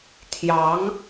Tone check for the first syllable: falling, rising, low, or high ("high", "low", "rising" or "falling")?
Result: rising